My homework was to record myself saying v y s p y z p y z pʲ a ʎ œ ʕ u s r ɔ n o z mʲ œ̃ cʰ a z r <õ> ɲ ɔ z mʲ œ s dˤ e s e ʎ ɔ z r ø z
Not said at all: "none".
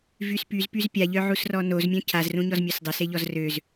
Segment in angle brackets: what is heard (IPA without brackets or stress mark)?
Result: ũ